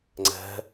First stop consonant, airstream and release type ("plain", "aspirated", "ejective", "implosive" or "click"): click